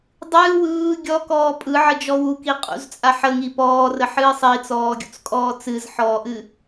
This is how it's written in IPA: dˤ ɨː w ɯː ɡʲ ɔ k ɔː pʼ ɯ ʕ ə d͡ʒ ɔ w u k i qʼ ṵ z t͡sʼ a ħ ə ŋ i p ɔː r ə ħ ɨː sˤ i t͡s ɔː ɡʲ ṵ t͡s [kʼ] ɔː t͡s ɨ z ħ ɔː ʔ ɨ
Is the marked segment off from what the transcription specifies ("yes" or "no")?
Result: no